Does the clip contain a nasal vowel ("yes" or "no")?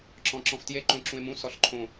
yes